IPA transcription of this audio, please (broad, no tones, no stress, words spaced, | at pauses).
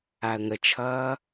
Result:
aə̯ŋət͡ʃʰʌː